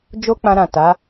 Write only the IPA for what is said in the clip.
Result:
d͡ʒ o˦ k͡p ã˧ ɾ ã˨ t a˨˦

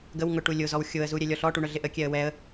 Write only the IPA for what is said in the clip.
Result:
ɡ ə w ŋ ʊ ʈ u lʲ ʊ z ɔ w xʲ ʊ ə̯ z u ɾʲ ɛ lʲ ɔ ɬ ɔ ʈ u ɳ œ ɮ ɪ ʔ ə kʲ ɛ ə̯ w ɛ ə̯

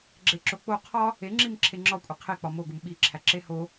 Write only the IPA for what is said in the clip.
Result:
ɡ͡ǁ e ǁ o k͡p o qʰ ɒ | e ŋ͡ǁ i m ǁʰ e ŋ͡ǁ ɒ kʷʼ e qʰ e k͡p ɒ m o ɡ u m ɓ i ǁʰ æ ǁ e h o

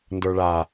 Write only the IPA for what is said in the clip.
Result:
n d ə˞ ɭ a

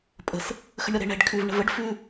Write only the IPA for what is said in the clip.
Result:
pʼ ə̤ s | x ə̤ ɳ ɾʲ ɔ ɾ e̤ ɳ ɛ̤ ɖ kʰ ʉ v ɳ ə̤ v ə ɖ f ʉ

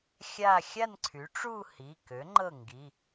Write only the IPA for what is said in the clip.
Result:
xʲ a˥˧ xʲ a˥˧ n ǀʰ y˩˥ ʈ͡ʂ u˥˧ h i˩˧˩ k ø˩˥ ŋ͡ǃ ɤ˥˩ ŋ ɡ i˩˧˩

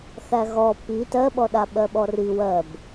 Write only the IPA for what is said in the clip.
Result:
θ æ ɣ ɔ p i t ɜ ɓ ɔ ɗ a ɓ ɜ ɓ ɔ r i w ɜ b

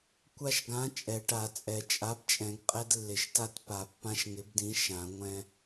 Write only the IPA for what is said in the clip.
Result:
kʷ a˦ ʃ ɡ ã˨˥ t͡ʃʼ ɛ˨˩˦ ʈ a˨˩˦ t͡sʼ ɛ˨˩˦ t͡ʃʼ a˨˥ b t͡ʃʼ ɛ̃˨˩˦ ɡ qʼ ɛ˦ d lː ɪ˨˩˦ ʃ t a˦ t p a˨˩˦ pː ã˦ ʃ ŋ ɪ˨˥ b d ĩ˨˥ ʃ ã˨˩˦ ŋʷ ɛ̃˦

